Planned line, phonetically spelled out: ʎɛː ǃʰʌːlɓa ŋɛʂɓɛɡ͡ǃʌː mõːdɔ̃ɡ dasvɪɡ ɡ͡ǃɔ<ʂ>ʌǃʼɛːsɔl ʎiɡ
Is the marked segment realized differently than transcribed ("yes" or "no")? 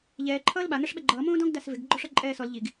no